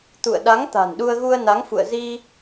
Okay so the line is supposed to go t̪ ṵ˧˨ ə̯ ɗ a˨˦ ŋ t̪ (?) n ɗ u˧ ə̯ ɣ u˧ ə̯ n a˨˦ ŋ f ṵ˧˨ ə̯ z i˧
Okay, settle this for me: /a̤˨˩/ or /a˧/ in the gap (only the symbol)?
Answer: a̤˨˩